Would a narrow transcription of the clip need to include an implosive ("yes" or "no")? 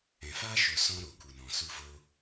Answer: no